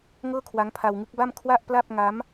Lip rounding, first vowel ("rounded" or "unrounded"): unrounded